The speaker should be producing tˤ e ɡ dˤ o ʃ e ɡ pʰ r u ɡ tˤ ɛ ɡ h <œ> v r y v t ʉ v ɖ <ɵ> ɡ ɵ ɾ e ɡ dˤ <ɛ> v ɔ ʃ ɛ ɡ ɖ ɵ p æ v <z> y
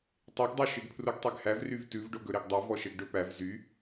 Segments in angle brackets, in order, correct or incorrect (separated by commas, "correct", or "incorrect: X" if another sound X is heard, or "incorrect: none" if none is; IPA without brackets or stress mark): incorrect: æ, incorrect: o, correct, correct